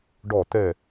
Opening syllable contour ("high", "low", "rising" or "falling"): falling